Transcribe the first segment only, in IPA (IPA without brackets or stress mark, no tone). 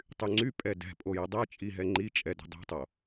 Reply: tˤ